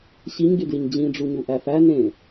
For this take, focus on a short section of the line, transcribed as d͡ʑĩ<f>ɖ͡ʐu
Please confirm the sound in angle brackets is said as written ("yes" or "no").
no